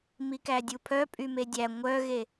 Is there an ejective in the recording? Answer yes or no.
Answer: yes